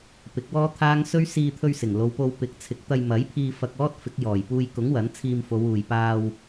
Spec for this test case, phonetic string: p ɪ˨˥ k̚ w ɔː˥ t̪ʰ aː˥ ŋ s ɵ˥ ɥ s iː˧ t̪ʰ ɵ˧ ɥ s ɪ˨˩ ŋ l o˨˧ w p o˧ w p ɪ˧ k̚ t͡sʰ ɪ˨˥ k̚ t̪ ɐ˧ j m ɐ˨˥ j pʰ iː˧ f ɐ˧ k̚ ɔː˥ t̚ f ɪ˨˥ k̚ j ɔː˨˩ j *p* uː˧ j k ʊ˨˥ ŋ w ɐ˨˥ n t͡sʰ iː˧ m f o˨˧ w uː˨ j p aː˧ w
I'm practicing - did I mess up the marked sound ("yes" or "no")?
no